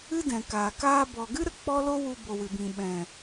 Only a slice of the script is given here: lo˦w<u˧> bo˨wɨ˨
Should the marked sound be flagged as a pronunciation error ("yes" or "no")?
no